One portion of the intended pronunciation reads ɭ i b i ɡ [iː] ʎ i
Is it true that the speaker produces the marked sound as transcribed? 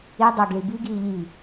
yes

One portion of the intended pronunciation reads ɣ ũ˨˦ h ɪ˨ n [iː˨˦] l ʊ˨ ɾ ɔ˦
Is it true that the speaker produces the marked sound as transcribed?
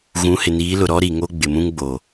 yes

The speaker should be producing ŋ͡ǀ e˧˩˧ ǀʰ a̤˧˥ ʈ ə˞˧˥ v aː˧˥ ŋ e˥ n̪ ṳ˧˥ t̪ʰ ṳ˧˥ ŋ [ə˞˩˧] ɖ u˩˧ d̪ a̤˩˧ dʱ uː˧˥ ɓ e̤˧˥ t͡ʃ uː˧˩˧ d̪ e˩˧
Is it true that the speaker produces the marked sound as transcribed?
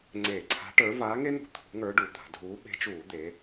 no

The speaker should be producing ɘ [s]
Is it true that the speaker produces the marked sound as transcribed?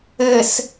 yes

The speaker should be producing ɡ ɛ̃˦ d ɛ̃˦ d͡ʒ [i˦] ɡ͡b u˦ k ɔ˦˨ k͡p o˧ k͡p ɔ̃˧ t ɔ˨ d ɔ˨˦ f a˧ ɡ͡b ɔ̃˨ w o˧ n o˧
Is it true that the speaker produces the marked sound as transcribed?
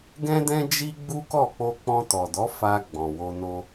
yes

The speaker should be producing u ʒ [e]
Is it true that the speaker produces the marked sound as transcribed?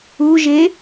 yes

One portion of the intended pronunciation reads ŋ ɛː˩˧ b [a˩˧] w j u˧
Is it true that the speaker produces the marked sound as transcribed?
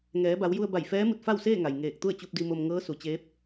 yes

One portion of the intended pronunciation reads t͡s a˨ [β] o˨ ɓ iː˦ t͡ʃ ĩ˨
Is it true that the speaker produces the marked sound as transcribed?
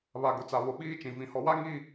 yes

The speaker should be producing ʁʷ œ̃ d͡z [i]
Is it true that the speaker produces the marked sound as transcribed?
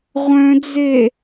no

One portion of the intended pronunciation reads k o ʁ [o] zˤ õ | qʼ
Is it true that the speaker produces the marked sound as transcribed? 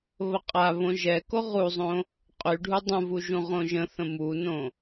no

